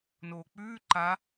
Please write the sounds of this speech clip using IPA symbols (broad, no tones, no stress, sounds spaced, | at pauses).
n oː k͡p ʉː ǃ a